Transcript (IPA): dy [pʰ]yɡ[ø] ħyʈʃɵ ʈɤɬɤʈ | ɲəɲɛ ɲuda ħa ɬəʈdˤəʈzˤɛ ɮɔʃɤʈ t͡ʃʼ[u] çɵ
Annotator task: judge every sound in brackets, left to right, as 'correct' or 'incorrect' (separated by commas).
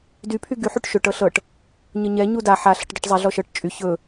correct, incorrect, incorrect